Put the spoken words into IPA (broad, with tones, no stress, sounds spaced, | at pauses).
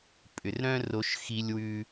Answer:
pʼ ʏ˩ r ɾ œ̃˥ r o˧ ʃ x i˧ lʲ w ʉ˧